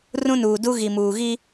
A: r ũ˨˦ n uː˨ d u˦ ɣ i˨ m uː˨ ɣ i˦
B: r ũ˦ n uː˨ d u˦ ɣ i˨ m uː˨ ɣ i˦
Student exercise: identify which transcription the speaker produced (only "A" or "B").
B